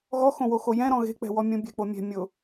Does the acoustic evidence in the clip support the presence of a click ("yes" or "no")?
no